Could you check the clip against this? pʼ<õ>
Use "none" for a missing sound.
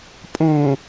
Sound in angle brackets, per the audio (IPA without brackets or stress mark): õ